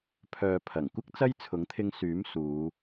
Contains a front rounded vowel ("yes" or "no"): yes